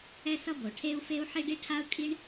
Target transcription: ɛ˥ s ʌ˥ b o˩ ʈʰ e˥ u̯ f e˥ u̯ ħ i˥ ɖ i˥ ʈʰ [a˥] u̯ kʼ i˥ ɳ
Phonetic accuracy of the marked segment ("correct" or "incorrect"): correct